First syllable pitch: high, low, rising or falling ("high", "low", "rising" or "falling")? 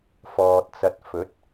low